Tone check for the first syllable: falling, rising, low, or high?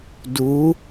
rising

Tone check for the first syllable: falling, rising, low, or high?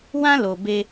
high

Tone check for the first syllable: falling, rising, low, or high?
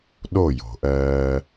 falling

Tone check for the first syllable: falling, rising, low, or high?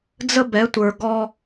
high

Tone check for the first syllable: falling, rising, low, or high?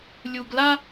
low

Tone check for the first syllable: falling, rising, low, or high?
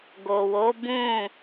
low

